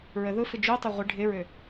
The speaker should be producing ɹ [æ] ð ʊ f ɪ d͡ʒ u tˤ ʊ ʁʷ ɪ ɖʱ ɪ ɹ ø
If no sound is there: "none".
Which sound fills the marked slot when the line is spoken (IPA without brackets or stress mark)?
ə